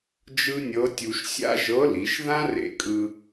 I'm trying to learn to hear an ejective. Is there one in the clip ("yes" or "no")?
yes